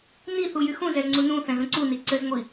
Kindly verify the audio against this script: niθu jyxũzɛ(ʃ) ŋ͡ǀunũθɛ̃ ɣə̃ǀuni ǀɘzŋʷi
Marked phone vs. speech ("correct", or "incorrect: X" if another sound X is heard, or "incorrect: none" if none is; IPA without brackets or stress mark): incorrect: z